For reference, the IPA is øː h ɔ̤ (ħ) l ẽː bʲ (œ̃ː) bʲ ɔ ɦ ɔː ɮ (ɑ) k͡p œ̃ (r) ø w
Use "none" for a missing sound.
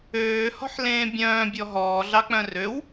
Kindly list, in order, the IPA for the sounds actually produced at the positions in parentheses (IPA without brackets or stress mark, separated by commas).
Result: ħ, œ̃ː, ɑ, r